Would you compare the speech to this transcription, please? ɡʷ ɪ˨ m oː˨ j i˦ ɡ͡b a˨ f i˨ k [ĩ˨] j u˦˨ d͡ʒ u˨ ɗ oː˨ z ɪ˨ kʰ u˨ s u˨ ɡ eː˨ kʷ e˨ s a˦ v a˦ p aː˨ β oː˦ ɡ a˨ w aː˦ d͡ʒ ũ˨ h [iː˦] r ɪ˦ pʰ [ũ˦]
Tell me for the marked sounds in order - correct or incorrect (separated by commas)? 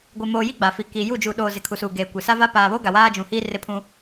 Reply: incorrect, correct, correct